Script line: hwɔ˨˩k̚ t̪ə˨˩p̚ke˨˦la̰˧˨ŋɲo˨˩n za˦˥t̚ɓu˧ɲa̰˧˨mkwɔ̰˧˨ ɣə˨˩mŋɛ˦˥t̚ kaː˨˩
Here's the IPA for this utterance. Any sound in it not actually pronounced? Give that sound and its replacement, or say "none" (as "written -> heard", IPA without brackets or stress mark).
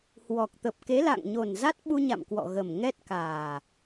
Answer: none